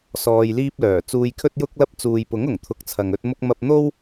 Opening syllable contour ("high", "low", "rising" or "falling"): low